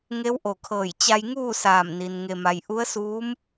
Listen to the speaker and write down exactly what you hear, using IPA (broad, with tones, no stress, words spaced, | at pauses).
ŋe˧˥wʔo˧˩kʰɤː˧˩j t͡ɕa˧jŋuː˥˨saː˧˩mni˩n ŋe˧ma˧j ʔu˧˥ə̯suː˧˥m